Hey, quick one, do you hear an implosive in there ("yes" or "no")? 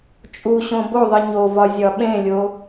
yes